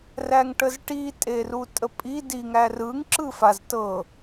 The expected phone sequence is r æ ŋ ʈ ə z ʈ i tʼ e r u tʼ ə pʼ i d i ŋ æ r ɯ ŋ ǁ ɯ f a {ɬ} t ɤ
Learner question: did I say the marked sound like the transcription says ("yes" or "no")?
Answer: no